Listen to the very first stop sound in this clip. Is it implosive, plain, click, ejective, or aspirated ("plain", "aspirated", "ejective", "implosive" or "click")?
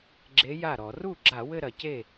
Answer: click